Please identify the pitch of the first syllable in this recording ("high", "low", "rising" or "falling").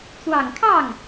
low